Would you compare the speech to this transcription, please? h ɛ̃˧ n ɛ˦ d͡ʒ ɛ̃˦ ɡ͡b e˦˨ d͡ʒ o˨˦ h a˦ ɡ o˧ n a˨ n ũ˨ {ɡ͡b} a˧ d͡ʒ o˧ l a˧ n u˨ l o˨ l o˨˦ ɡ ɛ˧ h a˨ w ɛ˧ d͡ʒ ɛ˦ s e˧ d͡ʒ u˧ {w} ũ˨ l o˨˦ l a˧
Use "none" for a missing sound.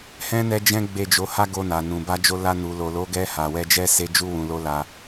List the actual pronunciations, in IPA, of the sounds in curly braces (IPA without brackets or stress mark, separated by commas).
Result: b, w